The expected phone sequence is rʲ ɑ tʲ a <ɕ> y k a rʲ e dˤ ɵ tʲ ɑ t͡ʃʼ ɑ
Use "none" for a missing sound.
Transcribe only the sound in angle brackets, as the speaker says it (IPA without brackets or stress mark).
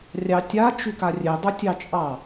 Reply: t͡ʃ